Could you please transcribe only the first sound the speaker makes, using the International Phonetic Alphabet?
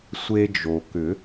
sʷ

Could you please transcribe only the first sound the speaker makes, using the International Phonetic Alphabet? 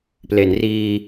p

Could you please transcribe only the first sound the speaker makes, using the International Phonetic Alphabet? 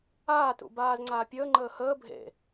aː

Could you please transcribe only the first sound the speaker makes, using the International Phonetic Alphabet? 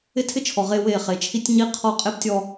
ɪ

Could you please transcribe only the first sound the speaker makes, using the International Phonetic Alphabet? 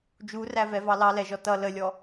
d͡ʒ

